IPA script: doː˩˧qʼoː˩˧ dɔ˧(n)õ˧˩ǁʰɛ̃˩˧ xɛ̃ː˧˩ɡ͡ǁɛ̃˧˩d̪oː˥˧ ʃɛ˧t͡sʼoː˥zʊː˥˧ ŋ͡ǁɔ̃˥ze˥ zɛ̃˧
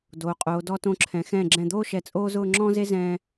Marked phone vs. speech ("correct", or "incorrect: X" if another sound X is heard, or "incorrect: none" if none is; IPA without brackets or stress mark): incorrect: t